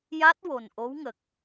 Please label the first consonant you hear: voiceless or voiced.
voiced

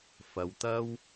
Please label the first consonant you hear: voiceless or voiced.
voiceless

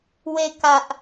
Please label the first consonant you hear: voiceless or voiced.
voiced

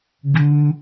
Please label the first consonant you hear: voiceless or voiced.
voiced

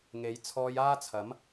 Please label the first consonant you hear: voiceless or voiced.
voiced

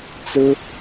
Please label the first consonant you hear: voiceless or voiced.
voiceless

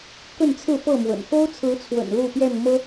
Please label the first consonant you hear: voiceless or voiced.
voiceless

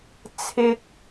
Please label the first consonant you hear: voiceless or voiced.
voiceless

